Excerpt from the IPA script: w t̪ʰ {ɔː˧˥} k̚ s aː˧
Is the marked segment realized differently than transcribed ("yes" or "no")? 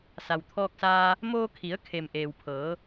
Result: yes